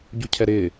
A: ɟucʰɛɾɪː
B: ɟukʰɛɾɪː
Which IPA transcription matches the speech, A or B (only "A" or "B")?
A